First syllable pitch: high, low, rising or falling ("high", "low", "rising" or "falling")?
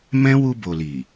high